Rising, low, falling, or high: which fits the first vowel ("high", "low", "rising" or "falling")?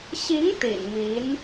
rising